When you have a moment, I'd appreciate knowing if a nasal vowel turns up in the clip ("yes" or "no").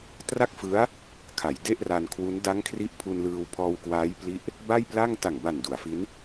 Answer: no